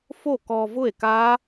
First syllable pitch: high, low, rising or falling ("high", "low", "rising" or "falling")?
falling